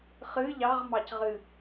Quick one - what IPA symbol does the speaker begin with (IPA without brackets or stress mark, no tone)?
χ